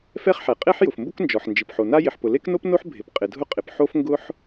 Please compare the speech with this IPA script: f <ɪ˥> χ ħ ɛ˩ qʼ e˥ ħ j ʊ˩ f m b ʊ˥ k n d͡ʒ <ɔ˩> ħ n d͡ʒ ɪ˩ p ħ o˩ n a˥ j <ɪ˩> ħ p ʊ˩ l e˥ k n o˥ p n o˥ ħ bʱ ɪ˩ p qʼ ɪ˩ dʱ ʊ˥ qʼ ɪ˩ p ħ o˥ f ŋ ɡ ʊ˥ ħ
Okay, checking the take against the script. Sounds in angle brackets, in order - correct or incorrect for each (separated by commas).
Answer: incorrect, correct, correct